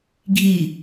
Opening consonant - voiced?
yes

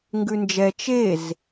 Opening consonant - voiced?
yes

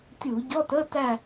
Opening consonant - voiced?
no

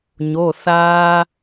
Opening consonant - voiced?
yes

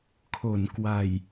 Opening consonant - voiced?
no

